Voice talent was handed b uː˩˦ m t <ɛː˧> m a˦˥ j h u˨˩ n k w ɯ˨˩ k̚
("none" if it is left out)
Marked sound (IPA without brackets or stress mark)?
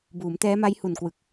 ɛː˦˥